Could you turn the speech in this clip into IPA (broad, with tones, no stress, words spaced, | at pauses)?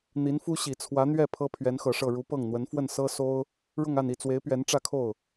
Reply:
n̪i˧˥nfu˥ɕi˨˩ t͡sʰwä˧˥n̪ɥɛ˥˩ pʰɤ˥pʰɥɛ˧˥nxɤ˨˩ʂɤ˥˩ ɻu˧˥pɤ˥˩ŋn̪wə˧˥n fwə˥˩nsɤ˥so˥ʊ̯ | ɻʊ˥˧ŋa˥˧n i˥˩t͡swe˧˥ɪ̯pɥɛ˧˥n ʈ͡ʂä˥˧kʰo˥˩ʊ̯